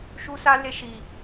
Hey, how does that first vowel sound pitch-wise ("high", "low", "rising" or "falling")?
high